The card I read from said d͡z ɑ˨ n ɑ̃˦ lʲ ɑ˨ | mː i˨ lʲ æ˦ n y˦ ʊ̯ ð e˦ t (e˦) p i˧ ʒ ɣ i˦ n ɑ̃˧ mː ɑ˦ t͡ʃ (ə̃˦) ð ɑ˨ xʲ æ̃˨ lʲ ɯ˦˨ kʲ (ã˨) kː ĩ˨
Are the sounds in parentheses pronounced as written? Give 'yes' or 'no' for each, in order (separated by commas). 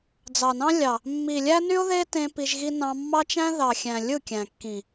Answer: no, no, no